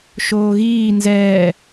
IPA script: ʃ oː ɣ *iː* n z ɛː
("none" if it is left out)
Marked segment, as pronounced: iː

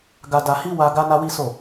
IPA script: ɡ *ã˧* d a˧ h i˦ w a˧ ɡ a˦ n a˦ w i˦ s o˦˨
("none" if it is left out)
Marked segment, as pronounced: a˧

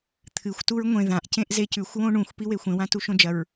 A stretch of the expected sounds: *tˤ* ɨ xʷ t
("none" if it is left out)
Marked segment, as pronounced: t̪ʰ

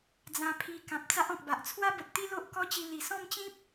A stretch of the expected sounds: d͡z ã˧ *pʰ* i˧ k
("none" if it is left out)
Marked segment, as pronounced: pʰ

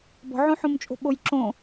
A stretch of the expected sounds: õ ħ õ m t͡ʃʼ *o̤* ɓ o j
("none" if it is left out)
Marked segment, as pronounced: o̤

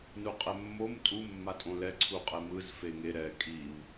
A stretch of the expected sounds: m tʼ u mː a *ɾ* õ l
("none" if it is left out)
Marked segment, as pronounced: tʼ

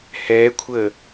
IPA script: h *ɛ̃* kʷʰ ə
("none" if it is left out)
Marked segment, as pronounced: ɛ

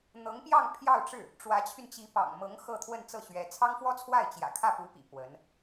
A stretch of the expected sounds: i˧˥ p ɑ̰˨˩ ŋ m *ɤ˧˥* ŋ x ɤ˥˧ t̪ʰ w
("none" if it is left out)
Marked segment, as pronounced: ɤ˧˥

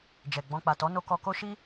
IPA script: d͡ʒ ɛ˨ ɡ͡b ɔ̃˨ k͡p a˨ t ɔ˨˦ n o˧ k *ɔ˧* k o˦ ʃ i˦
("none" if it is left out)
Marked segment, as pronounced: ɔ˧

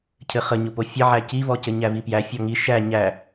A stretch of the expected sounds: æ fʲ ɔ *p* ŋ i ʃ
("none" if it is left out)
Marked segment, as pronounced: none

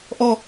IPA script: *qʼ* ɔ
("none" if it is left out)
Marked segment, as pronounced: ʔ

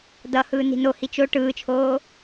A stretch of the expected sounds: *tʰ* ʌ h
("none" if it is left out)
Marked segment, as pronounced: d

